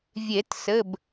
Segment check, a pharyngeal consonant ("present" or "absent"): absent